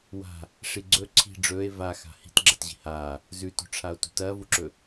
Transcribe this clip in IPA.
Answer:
w a̤ | ʂ i ɡ͡ǀ ɵ ǀʰ i̤ ɖ͡ʐ ɵː e̯ v a x a̤ h i̤ t ɡ͡ǁ ɐ t ʑ i̤ h aː | z ʉ t o̤ ʈ͡ʂʰ a o̯ t ṳ t ɐː v u ǁ ɵ

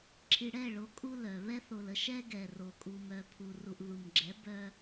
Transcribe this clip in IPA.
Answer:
ǁʰ i˨ ɽ ɛ˦˨ ɭ o˨˦ kʼ u˦ l œ˨ β ɛ˦ θ o˨ l ə˨ ʃ ɛ˦ ɡ ɛ˨ r o˨ kʼ u˨ m œ˨ pʰ u˨ r u˨ ʔ ð u˨ m ɡ͡ǁ ɛ˨˦ b œ˦

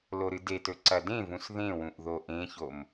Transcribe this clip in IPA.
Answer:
l o ɾ ɨ d e t ɵ ǀ ɐ d ẽ v ũ s ð ẽ w ũ ʔ ð o ʔ ẽ ç o m

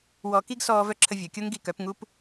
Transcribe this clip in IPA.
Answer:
w ɔ˧ k i˦ ɡ s ɔː˧ v œ˦ ǁʰ ə˧ vʲ œ˨ kʲ o˦ ŋ ɡ i˧ k œ˨˦ p ŋ u˦ p

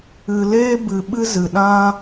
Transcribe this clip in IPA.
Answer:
ɨ˧ l eː˦ b ɨ˧ ɓ ɨ˦ z ɨ˧ ɗ ã˦

